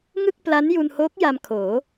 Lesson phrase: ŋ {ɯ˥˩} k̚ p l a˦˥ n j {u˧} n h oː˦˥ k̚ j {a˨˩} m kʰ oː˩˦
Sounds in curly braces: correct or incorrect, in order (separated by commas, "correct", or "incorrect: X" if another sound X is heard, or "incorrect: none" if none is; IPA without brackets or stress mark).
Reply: correct, correct, incorrect: a˧